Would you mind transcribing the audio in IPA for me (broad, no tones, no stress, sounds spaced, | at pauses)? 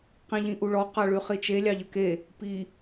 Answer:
q ĩ ʎ ĩ ʔ u ɭ ɔ q ɑ ɭ y χ i t͡ʃ e lʲ ɑ ʎ ə k e | p i